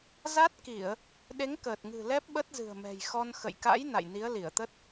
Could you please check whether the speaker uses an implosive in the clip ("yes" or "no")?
yes